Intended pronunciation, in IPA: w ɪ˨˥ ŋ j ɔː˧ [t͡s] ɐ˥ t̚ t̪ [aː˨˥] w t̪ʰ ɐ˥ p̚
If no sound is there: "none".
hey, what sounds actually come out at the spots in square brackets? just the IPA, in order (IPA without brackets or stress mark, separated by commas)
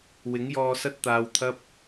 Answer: s, aː˧